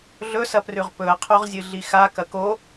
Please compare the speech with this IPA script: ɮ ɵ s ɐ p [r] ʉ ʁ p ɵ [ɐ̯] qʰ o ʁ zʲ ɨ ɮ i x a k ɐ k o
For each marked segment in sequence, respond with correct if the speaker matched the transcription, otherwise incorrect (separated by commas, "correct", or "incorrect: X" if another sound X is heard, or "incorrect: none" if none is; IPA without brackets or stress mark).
correct, correct